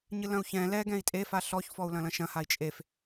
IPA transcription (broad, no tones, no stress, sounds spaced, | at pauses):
ɲ ɨ l ɐ̃ u̯ ç ɛ̃ l ɛ ɡ ɛ̃ i̯ tʼ e f a ɬ ɔ ç f ɔ u̯ l ɐ̃ l ɐ̃ ʃ ɐ̃ h a i̯ t͡ʃʼ e f